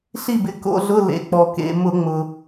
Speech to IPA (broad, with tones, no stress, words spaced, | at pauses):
ɬi˥˨bɪ˩˧˩ko̰˧˥˧ɮʊ˧˥˧ lḛ˩˧˩ k͡pɔ˩kḛ˩˧˩ mʊ˧˩˧ŋ͡mʊ˩